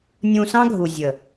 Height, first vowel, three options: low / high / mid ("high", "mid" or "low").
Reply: high